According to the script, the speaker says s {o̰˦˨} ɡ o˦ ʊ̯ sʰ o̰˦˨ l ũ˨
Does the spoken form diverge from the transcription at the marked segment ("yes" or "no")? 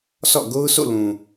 yes